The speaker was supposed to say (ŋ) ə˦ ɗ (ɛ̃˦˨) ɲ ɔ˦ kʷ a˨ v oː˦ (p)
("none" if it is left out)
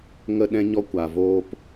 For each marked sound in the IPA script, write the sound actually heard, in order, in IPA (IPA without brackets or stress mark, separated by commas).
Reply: ŋ, ɛ̃˦, p